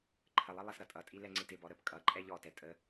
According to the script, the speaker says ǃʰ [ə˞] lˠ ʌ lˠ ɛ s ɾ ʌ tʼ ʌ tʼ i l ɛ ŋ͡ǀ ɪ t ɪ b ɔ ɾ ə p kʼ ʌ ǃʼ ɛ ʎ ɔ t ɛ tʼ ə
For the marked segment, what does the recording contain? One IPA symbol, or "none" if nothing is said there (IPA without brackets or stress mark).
ə